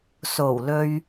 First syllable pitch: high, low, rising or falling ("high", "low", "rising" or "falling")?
low